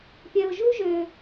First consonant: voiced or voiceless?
voiceless